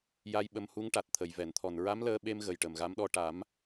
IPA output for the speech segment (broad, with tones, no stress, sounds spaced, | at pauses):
j a˧ j ɓ ə˧ m h u˧˥ ŋ ʈ a˨˩ t̚ t̪ʰ ə˨˩˨ j v ɛ˨˩˨ n t̪ʰ ɔ˨˩ n ɹ a˧˥ m l əː˧ ɓ e˧ m ɣ ə˨˩ j ʈ ə˨˩ m ɣ a˧˥ m ɗ ɔ˧ ʈ a˨˩˦ m